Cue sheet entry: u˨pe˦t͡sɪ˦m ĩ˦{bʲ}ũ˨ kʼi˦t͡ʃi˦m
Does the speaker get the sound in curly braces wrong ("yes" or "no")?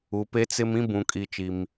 yes